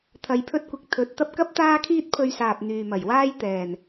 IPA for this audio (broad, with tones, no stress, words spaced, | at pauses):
t̪ʰɐ˧jpʰɵ˥t̚kʷɪ˧k̚ t̪ʰɵ˨˥t̚t̪ɐ˧p̚kɐ˥p̚ t̪aː˥kʰiː˥t̚pʰɵ˧ɥsaː˨p̚ n̪yː˨mɐ˨˩jwaː˥j t̪ɛː˨˩n